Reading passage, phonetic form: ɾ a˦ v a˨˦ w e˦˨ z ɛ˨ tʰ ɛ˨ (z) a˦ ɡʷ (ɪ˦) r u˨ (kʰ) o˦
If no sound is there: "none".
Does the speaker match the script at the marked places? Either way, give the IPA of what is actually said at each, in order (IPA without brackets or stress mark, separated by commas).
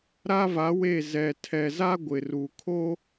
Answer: z, ɪ˨, kʰ